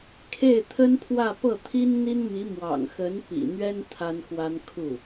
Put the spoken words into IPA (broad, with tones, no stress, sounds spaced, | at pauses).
kʰ e˥˩ ɪ̯ t̪ʰ ə˥ n pʰ w ä˥˧ p ɤ˥˩ t̪ʰ i˥ n n̪ i˥ n m i˧˥ m w ɑ̰˨˩ ŋ x ə˧˥ n p ḭ˨˩ n̪ ɥ ɛ˥ n t̪ʰ a˥ n x w a˥ n kʰ u˥˩